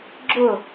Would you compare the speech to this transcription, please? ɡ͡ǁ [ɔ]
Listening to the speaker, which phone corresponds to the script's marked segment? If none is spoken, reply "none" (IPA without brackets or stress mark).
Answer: ʊ